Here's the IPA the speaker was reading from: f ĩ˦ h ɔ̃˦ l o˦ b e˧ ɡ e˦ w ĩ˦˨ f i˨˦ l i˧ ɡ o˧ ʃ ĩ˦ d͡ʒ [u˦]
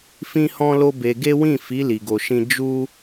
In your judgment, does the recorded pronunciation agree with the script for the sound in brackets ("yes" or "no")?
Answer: yes